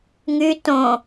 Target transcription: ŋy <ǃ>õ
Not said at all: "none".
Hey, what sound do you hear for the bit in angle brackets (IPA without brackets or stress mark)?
t